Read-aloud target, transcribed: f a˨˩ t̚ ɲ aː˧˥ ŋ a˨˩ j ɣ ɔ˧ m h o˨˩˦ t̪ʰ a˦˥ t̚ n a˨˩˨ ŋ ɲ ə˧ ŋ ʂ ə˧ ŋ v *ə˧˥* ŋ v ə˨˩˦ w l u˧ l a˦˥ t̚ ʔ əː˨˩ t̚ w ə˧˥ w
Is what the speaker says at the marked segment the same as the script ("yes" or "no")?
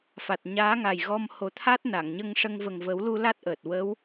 no